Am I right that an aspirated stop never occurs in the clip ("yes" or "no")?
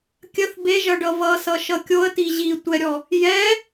yes